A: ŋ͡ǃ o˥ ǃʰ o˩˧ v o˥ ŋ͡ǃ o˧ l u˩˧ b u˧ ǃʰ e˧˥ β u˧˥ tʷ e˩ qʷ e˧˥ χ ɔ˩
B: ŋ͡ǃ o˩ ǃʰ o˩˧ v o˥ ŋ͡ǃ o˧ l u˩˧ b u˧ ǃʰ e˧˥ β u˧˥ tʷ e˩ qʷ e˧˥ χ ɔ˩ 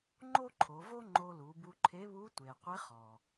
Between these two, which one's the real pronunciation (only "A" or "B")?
A